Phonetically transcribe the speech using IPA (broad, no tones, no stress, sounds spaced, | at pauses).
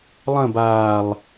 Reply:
lˠ ə̃ b aː lˠ